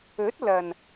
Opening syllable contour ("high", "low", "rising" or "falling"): rising